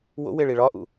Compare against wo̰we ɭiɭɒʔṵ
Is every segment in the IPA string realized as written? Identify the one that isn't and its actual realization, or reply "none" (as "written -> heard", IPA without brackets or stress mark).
none